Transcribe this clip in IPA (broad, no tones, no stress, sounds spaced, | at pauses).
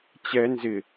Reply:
t͡ɕ ɛ n z ɪ